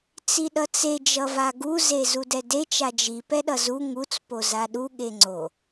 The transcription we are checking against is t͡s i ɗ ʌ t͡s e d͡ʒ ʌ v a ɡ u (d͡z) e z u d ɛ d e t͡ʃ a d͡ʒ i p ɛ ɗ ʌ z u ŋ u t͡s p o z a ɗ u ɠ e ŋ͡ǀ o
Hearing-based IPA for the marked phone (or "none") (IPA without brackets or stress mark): z